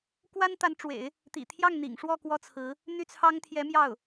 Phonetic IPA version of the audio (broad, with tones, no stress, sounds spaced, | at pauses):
k w a˥ n t̪ a˧˥ n ʈ͡ʂ w ḛ˨˩˦ ɪ̯ | t̪ ḭ˨˩ t̪ʰ j ɑ˥˩ ŋ n̪ ḭ˨˩ ŋ ʂ w ɔ˥˩ k w ɔ˥ t͡sʰ ɹ̩˧˥ | n̪ y˥˩ t͡sʰ ɑ˥ ŋ t̪ʰ j ɛ˧˥ m j ɑ˥˩ ʊ̯